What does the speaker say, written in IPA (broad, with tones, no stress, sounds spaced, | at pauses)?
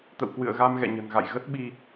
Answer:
t̪ ə̰˧˨ w k w ɨ̰˧˨ ə̯ ɣ a˧ m ɣ ɛ̰˧˨ ɲ ə̤˨˩ n ɣ a̰˧˨ j ɣ ə˦˥ t̚ ɓ i˧